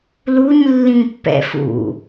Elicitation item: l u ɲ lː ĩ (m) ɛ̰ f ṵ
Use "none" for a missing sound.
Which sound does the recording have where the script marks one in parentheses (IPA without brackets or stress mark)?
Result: pː